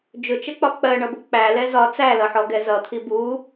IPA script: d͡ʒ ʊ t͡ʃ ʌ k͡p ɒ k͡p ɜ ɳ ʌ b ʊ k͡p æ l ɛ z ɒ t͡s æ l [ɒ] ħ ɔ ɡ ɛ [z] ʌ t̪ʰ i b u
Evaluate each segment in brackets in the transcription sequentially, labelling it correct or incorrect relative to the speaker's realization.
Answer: incorrect, correct

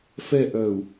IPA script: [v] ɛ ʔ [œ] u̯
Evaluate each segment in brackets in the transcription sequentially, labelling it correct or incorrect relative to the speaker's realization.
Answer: incorrect, correct

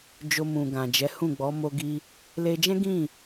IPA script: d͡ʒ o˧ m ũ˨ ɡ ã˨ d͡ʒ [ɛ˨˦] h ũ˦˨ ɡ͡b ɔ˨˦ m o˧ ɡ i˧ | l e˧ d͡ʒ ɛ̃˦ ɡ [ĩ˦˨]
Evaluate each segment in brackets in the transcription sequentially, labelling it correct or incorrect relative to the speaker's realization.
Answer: correct, correct

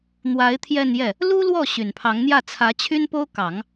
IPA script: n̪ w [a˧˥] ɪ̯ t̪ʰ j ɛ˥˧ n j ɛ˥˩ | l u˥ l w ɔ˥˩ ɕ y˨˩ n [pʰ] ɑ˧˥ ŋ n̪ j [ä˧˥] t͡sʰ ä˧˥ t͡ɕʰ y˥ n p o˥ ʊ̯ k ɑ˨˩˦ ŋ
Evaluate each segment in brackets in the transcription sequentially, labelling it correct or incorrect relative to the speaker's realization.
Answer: correct, correct, incorrect

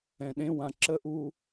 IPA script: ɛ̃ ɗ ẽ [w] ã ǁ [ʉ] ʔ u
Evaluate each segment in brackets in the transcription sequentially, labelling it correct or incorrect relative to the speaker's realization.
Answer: correct, incorrect

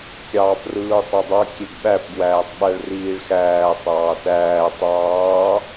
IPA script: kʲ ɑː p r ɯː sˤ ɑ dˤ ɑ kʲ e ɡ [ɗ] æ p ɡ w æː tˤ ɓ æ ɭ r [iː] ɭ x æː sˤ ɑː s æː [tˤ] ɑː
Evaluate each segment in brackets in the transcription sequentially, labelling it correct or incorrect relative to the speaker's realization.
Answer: incorrect, correct, correct

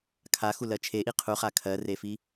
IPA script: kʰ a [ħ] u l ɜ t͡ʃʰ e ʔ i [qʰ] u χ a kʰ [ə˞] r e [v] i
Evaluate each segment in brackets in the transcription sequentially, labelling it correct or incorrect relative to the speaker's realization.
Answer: incorrect, correct, incorrect, incorrect

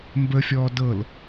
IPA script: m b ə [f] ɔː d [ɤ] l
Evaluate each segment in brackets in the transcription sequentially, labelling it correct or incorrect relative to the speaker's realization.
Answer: incorrect, correct

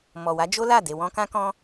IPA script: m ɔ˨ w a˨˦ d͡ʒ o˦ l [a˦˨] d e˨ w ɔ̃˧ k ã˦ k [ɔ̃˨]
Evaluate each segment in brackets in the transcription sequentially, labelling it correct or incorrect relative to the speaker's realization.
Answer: correct, incorrect

